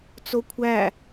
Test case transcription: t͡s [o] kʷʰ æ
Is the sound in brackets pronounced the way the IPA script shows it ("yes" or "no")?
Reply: yes